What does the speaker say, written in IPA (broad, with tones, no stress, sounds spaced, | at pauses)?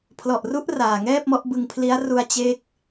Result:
pʰ l ɔ˨˩ ʔ r u˦˥ ʔ r aː˨˩ ŋ ɛː˥˩ p̚ m ɔ˦˥ ʔ b ɯ˧ ŋ pʰ l i˦˥ a̯ r u˧ a̯ t͡ɕ e˥˩ k̚